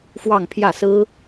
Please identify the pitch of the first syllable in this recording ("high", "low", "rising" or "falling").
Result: falling